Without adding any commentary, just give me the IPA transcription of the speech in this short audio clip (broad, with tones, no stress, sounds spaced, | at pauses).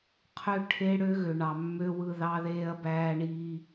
qʰ ø˦ ʈʰ e˦ ɽ ø˦ ɣ ø˨ ɳ ɑ˨ mː ø˦ w ɯ˦ ð ɑ˦ ð eː˦ ɐ̯ b æː˦ ɳ iː˦